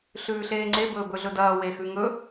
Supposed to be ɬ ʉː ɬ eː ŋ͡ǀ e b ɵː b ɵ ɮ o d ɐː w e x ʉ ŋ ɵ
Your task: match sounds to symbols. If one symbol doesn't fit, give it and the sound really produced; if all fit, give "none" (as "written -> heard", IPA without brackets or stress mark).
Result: o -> ɵ